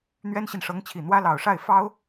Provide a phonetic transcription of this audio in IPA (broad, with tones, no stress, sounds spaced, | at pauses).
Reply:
n̪ ɥ ɛ˥ n ɕ i˨ n ʂ ɤ˧˥ ŋ t͡ɕʰ i˨˩ n̪ w ä˥ l ɑ˨˩ ʊ̯ ʂ a˥˩ ɪ̯ f ɑ˥ ʊ̯